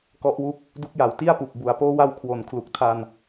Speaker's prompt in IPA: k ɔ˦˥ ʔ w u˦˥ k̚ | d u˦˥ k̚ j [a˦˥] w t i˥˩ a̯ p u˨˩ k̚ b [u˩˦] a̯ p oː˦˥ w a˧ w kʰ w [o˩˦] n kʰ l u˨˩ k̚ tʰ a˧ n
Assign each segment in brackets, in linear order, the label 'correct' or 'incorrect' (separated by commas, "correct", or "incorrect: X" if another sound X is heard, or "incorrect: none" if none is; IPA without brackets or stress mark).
incorrect: a˨˩, correct, correct